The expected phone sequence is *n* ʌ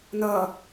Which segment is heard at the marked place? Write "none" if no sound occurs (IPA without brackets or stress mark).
n